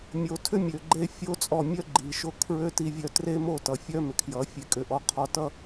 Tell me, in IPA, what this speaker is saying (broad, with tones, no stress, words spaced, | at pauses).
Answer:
mʲo˨tʰʏ˦ mʲø˨ɡ͡ǃe˦fʲo˦t͡sʼɔ˦˨ mʲœ˦ɡ͡ǃi˨ʃo˦kʰɹø˦ ti˦vʲœ˦ tre˦mo˦˨tʌ˨ fʲœ˦mʏ˨kʰjʌ˨˦ fʲe˦kʼʏ˦ʔɔ˦ qʰɔ˦tʌ˦